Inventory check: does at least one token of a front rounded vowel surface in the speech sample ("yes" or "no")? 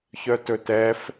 yes